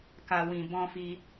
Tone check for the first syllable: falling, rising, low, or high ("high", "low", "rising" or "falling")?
low